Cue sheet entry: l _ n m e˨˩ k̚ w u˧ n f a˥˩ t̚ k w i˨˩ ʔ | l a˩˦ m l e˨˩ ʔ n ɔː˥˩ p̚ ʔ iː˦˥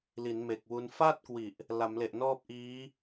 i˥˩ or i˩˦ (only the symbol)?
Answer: i˩˦